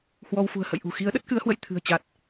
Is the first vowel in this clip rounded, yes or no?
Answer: yes